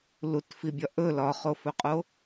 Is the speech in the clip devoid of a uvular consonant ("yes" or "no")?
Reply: no